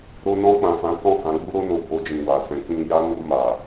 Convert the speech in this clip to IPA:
ɾo˧nɔ̃˧k͡pã˨fã˨˦ kɔ̃˦˨hã˨˦ɡ͡bu˦ ɾo˧no˨ bo˧d͡ʒĩ˨wa˨sɛ̃˨˦ k͡pĩ˧ja˦ nu˧ ma˨

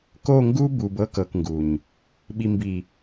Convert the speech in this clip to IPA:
ko˦˨ŋɡu˦bu˨b ɤ˦kɤ˨kŋɡu˨ɲ | ɓi˨mbi˨

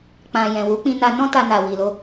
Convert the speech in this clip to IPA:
k͡pã˨ jɛ̃˨wu˨˦k͡pĩ˧na˧ nɔ̃˦ ta˧na˨wi˨lo˧

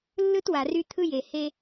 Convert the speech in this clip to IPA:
lːɯ˦t wa˨ry˦ t̪ʰɯ˦je˨ he˦

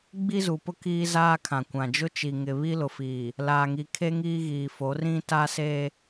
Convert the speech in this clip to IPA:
ɡ͡bi˦zu˨pʊ˦ kiː˦zaː˦kʰã˨kʷã˨ d͡ʒʊ˦t͡ʃi˨ŋɪ˨ βi˦lʊ˨fiː˨ | laː˨ŋi˨kʰe˦ ŋiː˦ɣiː˨fo˨˦ rĩ˦ ta˦se˦

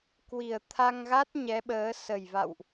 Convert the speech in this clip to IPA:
kwi˨˩ə̯t̪ʰa˧ŋɣa˦˥t̚ ɲɛ˨˦ɓəː˨˦ sə˨˩jva̰˧˨wʔ

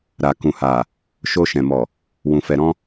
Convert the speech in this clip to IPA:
ɾa˨kũ˨ha˨ | ʃo˧ʃɛ̃˨mɔ˨ | wũ˨fɛ˨ɾɔ̃˧

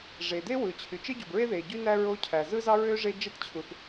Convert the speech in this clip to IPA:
ʐe˩de˥wɯ˩ t͡ɕʰy˩t͡ʃe˥ɟu˩bɹe˥ ðe˩ɟy˥næ˥ ɹo˥ cʰæ˩zɯ˥zɑ˥ɹø˥ ʐe˥ d͡ʒe˥tt͡ɕʰu˩θ

